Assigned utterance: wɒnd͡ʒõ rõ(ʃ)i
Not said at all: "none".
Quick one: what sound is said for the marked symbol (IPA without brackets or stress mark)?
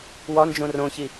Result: ç